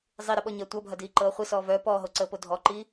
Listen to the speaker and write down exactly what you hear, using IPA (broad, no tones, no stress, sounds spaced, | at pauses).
zˤ i ɾ ə ɓ ɔ ɲ ɐː tʷ ɐ bʱ ɐ d iː ǃ ɤː χʷ i s ɔː v œː p ɔː ɦ o ǀ əː p o dʱ ɔ ǃ i